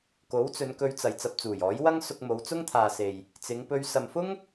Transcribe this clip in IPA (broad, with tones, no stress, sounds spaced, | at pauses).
k o˨˥ w t͡s ɵ˨˧ n k ɵ˧ ɥ t͡s ɐ˨ j t͡s ɐ˧ p̚ t͡s uː˨˩ j ɔː˨˥ j w ɐ˥ ŋ s ʊ˧ k̚ m o˨˧ w t͡s ʊ˥ ŋ t̪ʰ aː˨ s e˨ j | t͡s ɪ˨˧ ŋ p ɵ˧ ɥ s ɐ˨ m f ʊ˥ ŋ